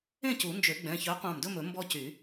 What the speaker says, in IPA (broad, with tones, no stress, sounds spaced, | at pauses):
ẽ˥˨ c u˨˩˦ n d͡ʒ ø˨˩˦ ɡ͡b ɛ̃˩˧˩ ç œ˨˥ qʷ ɑ̃˧˩ m d ɵ˥˨ m ɵ˨˩˦ m b ɔ˦ c y˨˩˦